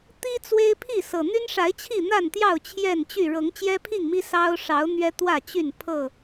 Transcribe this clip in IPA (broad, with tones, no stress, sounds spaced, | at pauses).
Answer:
t̪ i˦ t͡s w e˦ ɪ̯ pʰ i˥˨ s ɤ˨˩ n̪ y˦ n ʂ a˨˦ ɪ̯ t͡ɕʰ i˥˨ n̪ a˥˨ n t̪ j ɑ˥˨ ʊ̯ t͡ɕʰ j ɛ˥˨ n t͡ɕ y˥˨ ɻ ɤ˨˦ ŋ t͡ɕ j ɛ˦ pʰ i˥˨ ŋ m i˦ s ɑ˦ ʊ̯ ʂ ɑ˨˦ ʊ̯ n̪ ɥ ɛ˦ t̪ w ä˥˨ t͡ɕ y˥˨ n pʰ ɤ˥˨